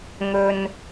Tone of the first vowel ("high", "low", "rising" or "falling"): low